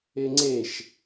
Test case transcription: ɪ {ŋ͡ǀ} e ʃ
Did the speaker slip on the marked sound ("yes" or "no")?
no